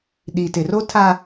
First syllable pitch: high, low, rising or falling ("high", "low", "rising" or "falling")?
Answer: low